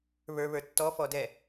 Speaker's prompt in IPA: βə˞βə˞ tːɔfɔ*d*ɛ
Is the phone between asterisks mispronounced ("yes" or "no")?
no